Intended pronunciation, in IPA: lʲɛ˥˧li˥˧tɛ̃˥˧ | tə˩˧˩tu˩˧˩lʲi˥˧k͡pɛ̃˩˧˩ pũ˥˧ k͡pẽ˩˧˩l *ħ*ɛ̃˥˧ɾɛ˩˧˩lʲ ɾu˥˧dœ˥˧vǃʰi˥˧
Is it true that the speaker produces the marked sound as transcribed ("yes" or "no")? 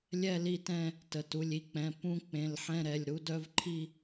yes